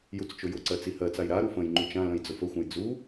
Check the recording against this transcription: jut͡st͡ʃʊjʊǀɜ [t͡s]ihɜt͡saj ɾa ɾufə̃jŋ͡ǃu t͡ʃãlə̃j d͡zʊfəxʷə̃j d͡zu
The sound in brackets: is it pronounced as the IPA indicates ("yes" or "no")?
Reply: yes